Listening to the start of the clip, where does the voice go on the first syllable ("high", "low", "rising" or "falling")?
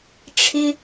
high